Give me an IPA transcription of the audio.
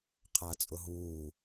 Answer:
qʰ a t͡sʼ ʊ ɦ uː

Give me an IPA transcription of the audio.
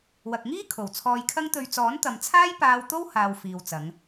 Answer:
w ɐ˨ k̚ ŋ iː˥ kʰ o˨˩ w t͡sʰ ɔː˧ j kʰ ɐ˥ ŋ t̪ ɵ˧ ɥ t͡s ɔː˨˥ n t̪ ɐ˨ m t͡sʰ aː˥ j p aː˧ w t̪ o˥ w h aː˨ w f iː˨ w t͡s ɐ˨˧ ŋ

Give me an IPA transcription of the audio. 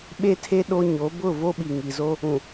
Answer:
ɓ e˦ tʰ e˦ ɗ o˦ ɲ o˨˦ b ʊ˦˨ v o˦ ɓ i˨ ŋ i˨ z o˦ | ũ˨

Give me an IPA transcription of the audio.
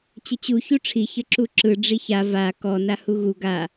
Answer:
t͡ɕ ə t͡ɕ u ç u ʈ͡ʂʰ i ç ə ǁ u ǁ ɯ ɖ͡ʐ i ç a v a k ɔ n a h u ɣ u ɡ a

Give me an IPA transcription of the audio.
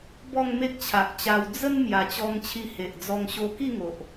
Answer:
b ɔ˥˧ ŋ m e˦ k̚ t͡ɕʰ a˨ ʔ t͡ɕ a˧ w d͡z ə˦ n m j a˨˩ t͡ɕ ɔ˧ ŋ t͡ɕʰ i˧ h e˨ ʔ d͡z ɔ˧ ŋ ɕ o˧ k i˥˧ ŋ o˨ ʔ

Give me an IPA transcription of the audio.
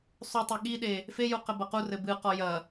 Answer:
sˤ u tˤ ɛ ɠ i ɗ e | f e j u q ɘ b ɐ q u r ɘ b ɨ q ɔ j ɐ

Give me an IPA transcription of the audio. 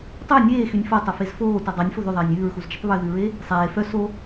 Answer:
tˤ ø nʲ eː x y nʲ f o tˤ ɵ f e z f oː t œ dˤ ɑ nʲ f o ð ʉ ðˤ eː nʲ ʉː ɹ x u z d͡ʒ ɵ tˤ β ʉ ð ʉ ɹ e | sˤ eː f œ s o

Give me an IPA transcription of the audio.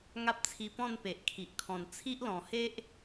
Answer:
ŋ a˦ p̚ t͡sʰ i˧ p ɔ̃˥˧ n p e˨ ʔ kʰ i˨ ʔ kʰ ɔ̃˨˩ n t͡sʰ i˦ ʔ l ɔ̃˨˩ h e˦ ʔ

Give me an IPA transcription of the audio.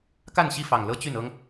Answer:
k a˥˨ n ɕ i˥˨ f ɑ˨˩ ŋ l ɤ˦ t͡ɕ y˥˨ n ɤ˦ ŋ

